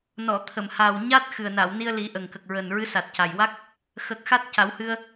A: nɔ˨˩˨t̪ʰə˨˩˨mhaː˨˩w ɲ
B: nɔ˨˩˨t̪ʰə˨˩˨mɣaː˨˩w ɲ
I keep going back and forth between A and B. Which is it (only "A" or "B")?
A